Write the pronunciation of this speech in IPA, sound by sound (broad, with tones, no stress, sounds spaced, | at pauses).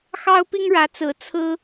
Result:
x ɑ˥ ʊ̯ p i˥ ŋ ɻ ä˧˥ t͡s ɹ̩˧˥ t͡sʰ ɹ̩˥